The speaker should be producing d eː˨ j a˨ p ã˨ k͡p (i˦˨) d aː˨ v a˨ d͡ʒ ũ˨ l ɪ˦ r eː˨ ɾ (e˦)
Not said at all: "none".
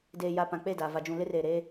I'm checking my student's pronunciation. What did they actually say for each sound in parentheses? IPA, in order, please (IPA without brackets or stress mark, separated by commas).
e˦˨, eː˦